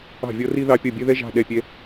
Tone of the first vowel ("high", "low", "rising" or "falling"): falling